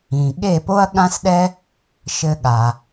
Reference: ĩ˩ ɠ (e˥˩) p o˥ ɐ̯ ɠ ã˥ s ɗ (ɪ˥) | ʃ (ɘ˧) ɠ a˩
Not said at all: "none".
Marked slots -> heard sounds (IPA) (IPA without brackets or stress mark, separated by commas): e˥˩, ɛ˥, ɘ˧